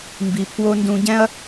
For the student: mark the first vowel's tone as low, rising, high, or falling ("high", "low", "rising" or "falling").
low